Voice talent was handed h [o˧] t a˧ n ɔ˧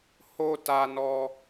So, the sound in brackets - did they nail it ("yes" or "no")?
yes